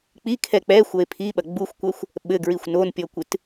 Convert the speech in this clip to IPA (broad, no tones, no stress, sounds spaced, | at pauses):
k͡p i kʰ ɛ k͡p ɛ xʷ ɐ e̯ pʰ i ɓ ɐ ɡ͡b u xʷ kʷ ɐ xʷ | ɓ ɘ ɡ ɹ i xʷ n o n pʲ ɔ kʷ ɨ t